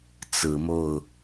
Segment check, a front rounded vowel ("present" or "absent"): absent